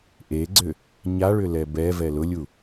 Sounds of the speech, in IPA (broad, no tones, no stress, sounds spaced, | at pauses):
ʔ e ɡ͡ǀ ʏ | ɲ a ɭ ʏ l ɛ b ɛ v ɛ l ʊ lʲ u